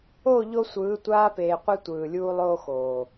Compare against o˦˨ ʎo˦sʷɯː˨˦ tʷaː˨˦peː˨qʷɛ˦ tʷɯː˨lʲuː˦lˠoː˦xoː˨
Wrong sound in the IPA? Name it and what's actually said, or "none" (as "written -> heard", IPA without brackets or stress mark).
aː˨˦ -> aː˦